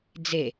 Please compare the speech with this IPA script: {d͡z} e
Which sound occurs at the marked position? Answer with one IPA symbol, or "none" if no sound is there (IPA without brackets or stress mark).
d͡z